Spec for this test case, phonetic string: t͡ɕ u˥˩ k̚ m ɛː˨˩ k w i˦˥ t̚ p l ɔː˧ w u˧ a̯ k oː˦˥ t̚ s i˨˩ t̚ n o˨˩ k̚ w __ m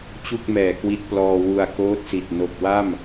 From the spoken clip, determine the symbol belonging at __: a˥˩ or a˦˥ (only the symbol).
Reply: a˥˩